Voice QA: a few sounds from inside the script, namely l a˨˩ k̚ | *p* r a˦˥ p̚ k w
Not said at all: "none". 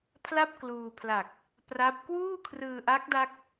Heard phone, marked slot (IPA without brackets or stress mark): p